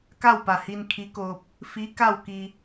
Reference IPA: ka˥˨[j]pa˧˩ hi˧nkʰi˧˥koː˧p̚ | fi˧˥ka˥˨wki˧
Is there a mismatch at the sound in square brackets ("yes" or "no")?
yes